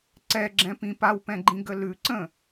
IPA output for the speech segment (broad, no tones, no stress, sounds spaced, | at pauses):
ǀ ɛ ɡ͡ǁ ɛ̃ p ĩ p a w p ɛ̃ ɡ͡ǃ ĩ ɡ ə l ʉ ǀ ə̃